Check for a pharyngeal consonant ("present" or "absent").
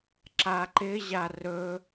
absent